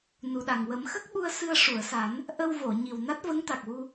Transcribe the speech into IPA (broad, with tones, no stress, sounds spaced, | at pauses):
n u˨˩ ɗ a˨˩ ŋ w ə˨˩˦ m x ə˦˥ k̚ ɓ u˧ ə̯ s ɨ˧ ə̯ ʂ u˨˩˨ ə̯ s a˨˩˦ n | ʔ ə˧ w v o˨˩˨ ɲ i˨˩ w n a˦˥ t̚ v ə˧˥ ŋ t̪ a˨˩ k̚ w u˧